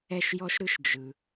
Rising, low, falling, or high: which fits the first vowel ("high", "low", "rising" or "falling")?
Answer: high